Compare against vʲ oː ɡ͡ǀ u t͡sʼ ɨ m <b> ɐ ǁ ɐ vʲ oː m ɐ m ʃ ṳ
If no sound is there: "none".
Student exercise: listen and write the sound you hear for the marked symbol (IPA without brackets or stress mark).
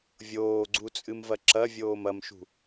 v